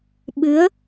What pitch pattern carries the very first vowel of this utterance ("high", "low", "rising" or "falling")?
rising